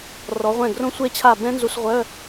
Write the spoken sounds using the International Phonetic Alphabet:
r ɔ˩˧ ʁʷ ɛ̃˧˩ ɡ r õ˧ sʷ e˧ t͡ɕʰ a˧˩ b ɛ̃˦˥ n z u˧ s ʁʷ œ˧˥˧

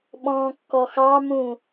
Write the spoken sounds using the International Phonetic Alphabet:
ɓ ɔ̃ː kː ɔ x ɑ m ũ

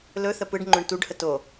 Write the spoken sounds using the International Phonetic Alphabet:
l ɵ θ ə p ɯ ɖ ŋ͡ǃ ɵ ɳ t u ɖ h ə t o

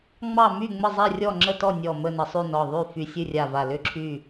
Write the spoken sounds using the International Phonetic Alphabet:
ŋ͡m ɑ˥˨ m y˥˨ ŋ͡m ə˥˨ zˤ ɛ˥˨ rʲ ɔ˥˨ ŋ͡ǁ ə˥˨ t ɔ˥˨ nʲ ɔ˧˩ m ə˥˨ n ə˧˩ sˤ y˥˨ n ɔ˧˩ ðˤ y˥˨ f y˧˩ sʲ ɨ˥˨ rʲ a˧˩ v a˧˩ l ʏ˥˨ ǁʰ y˥˨

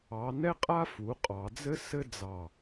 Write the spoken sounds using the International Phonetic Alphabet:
ɑ˨˦ n ɛ˥ qʼ a˥ f u˨˦ qʼ ɑ˨˦ d͡z ɘ˥ s ɘ˥ d͡z ɑ˧˩

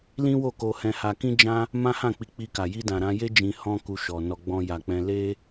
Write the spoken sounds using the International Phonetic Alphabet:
l ĩ˦ w o˦˨ k o˧ h ɛ̃˧ h a˧ k ĩ˦ d͡ʒ ã˦ | m ã˦ h ã˦˨ k͡p i˧ k͡p i˧ k a˨ j i˧ d ã˨ ɾ ã˧ j e˦ d͡ʒ ĩ˧ h ɔ̃˦ k u˧ ʃ ɔ˨ n ɔ˧ ɡ͡b ɔ̃˧ j a˨ k͡p ɛ̃˧ l e˦

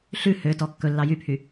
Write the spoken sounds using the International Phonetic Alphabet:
ɬ ʉ h ø t ɔ kː ɵ lː ɑ j y pʰ y

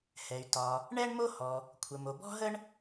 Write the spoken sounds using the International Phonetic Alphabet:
h ɛ˩ y̯ t ɒ˩ | ɳ ɛ˥ ɳ m o˥ h ɔ˩ | kʷʰ ə˩ m o˩ b ɔ̤˥ ɦ ə˥ ɳ

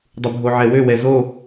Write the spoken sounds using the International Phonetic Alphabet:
dˤ u bʱ o ʕ ɛ w ø w ɛ z o

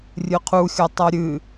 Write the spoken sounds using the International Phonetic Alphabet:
rʲ ɨ qʰ u xʲ ʌ tˤ ʌ ɾʲ ɨ

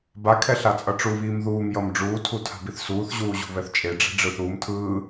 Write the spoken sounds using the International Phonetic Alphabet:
b a kʰ ɛ ɬ a t͡sʼ ʌ ʈ͡ʂ u β iː m ð uː m j ʌ m ɖ͡ʐ uː tʰ u tʰ a̤ b i θ s uː θ ʑ uː ʑ ṳ β ɛ θ t͡ʃʼ e ɖ͡ʐ ɛ̤ ɖ͡ʐ ɯ θ uː m tʰ ɯː

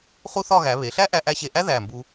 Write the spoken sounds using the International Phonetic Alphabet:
χ u˥ θ ɒ˥˧ ɣ æ˩˧ β e˩˧ ɬ æ˥ ʔ æ˧ ʔ æ˧ ɕ e˧˩ ʔ æ˥ ð æ˧˩ m b u˧

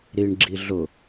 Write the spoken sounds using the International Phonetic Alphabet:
ɾ i ɳ ɡ͡ǁ i ɮ ʊ

